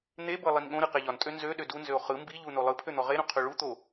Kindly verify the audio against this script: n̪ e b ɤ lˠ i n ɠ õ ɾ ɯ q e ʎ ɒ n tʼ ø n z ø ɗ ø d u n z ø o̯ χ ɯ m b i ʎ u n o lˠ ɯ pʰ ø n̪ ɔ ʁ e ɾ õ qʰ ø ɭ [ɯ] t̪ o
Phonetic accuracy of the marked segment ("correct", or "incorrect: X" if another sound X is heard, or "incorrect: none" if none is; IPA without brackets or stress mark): incorrect: u